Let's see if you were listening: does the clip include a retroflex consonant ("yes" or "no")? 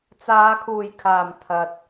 no